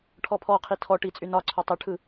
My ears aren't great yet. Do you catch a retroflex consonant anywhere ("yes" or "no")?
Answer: yes